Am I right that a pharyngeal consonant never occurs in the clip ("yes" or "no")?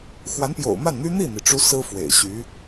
yes